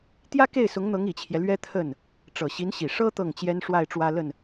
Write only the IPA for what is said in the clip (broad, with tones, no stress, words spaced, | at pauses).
t̪jä˥ke˥˩ɪ̯sʊ˧˥ŋn̪ɤ˧˥ŋ i˨˩t͡ɕʰjɛ˦lɥɛ˥ t̪ʰə˥˩n | ʈ͡ʂɤ˨˩ɕi˧˥nɕi˨˩ ʂɤ˥ t̪ɤ˥˩ŋt͡ɕjɛ˥n ʂwa˥˩ɪ̯ ʈ͡ʂwä˥lə˥˩n